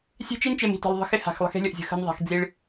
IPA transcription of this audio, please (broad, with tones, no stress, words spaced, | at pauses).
sʲe̤˦t͡ʃi˦nt͡ʃe˨m i̤˨tə̤˨lˠðˤə̤˦ xɪ˦ ha̤˨xlˠə̤˦xe̤˦lʲə˨ʔ zʲə̤˦xə̤˦nðˤa̤˨˦x d͡zi˦ɭ